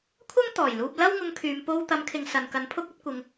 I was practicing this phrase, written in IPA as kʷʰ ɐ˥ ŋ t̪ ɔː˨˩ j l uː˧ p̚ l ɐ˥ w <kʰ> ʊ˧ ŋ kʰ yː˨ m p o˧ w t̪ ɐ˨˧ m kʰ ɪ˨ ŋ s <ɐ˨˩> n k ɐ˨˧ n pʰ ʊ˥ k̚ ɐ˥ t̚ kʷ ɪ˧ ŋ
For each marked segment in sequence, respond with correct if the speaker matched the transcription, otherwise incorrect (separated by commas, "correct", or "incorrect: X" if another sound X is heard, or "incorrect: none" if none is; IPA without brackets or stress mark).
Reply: incorrect: ŋ, incorrect: ɐ˨